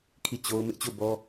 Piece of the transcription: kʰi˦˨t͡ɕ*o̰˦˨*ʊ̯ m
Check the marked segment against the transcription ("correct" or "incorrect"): incorrect